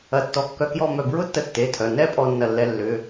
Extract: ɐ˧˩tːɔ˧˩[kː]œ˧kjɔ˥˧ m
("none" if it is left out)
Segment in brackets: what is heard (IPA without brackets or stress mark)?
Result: kː